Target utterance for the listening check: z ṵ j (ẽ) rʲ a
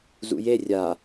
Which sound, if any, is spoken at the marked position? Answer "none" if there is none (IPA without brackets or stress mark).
e